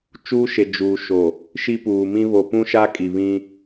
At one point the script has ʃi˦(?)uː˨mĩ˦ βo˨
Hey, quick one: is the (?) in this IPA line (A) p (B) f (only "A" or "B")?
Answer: A